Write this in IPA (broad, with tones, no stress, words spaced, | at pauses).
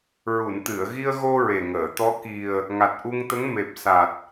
ɹu˨˩˨nt̪ɨ˨˩˨ə̯ɣi˧ə̯ɣo˧ ɹe˨˩ŋəː˨˩˨t̪ɔ˧˥ ki˨˩ə̯ | ŋa˨˩t̚ʔu˧ŋt̪ə˧˥ŋ me˨˩p̚sa˨˩t̚